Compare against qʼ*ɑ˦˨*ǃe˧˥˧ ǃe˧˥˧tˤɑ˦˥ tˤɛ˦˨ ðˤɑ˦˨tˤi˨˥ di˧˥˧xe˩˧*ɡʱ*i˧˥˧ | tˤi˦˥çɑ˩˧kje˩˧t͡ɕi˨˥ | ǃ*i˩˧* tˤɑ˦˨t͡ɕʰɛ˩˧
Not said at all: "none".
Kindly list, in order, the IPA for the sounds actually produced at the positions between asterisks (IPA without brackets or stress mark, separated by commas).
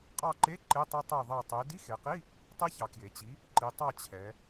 ɑ˦˨, q, i˩˧